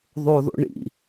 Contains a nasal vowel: no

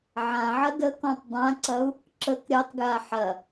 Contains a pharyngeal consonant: yes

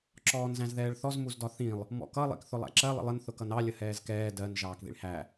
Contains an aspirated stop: no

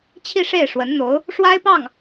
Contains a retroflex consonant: yes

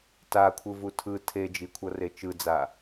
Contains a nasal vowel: no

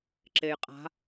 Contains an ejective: yes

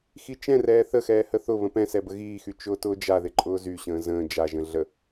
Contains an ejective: yes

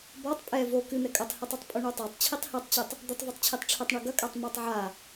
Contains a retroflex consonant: yes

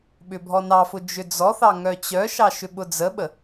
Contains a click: no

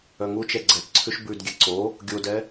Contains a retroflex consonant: no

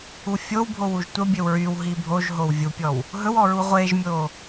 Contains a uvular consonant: yes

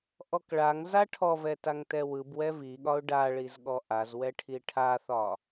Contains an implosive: yes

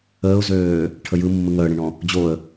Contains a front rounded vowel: yes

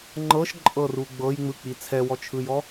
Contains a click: yes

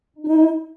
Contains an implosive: no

